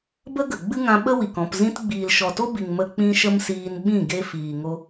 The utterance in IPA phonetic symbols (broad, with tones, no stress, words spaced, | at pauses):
bə˦ɡə˨ ɡ͡bɨ˦ŋã˧ ɓə˦wi˨k ɔ̃˨pzĩ˧t ɡ͡biː˨lʃɔ˨to˦bi˨ŋ mə˨ k͡pĩ˧ ʃə˦msiː˧nɓĩ˦˨ ɡe˦fiː˨ŋo˦